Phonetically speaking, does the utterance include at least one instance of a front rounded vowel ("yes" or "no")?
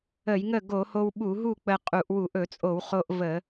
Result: no